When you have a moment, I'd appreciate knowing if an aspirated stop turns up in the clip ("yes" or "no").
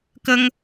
no